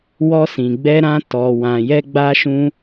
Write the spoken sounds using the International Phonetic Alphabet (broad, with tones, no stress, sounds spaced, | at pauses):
w ɔ˧ s ĩ˨ ɡ͡b ɛ˧ ɾ ã˧ t ɔ˨ w ã˨ j ɛ˧ ɡ͡b a˧ ʃ ũ˧